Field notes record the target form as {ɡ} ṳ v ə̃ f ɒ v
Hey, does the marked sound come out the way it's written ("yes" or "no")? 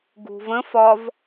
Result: yes